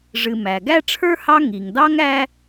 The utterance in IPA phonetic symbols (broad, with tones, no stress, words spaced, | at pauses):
ʐɨ˨mæ˩ ɡæ˥ ʈ͡ʂʰə˞˥hɑ˦ ŋi˩ŋdɑ˦ŋ æ˥